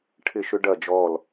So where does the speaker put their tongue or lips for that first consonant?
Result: retroflex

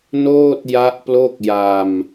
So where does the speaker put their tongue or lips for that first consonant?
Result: tongue tip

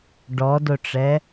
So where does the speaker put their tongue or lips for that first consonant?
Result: retroflex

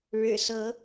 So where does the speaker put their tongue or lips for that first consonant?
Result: retroflex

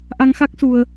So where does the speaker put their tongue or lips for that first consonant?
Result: throat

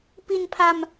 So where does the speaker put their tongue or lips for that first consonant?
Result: lips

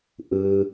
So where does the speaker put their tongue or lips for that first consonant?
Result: throat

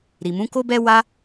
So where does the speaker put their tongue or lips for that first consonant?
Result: tongue tip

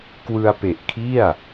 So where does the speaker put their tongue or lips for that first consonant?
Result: velum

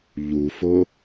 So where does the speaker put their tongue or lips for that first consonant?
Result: palate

